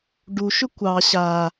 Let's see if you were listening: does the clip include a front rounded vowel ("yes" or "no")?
yes